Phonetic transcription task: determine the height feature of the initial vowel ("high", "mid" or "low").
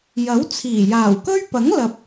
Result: low